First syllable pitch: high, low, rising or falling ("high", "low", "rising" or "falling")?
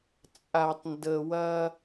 low